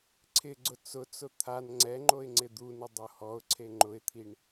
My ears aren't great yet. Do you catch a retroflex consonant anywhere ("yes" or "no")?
yes